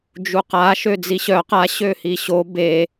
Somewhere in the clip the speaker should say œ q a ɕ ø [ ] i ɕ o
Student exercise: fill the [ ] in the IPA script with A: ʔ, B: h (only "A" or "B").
B